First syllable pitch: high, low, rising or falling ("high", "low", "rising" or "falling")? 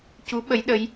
rising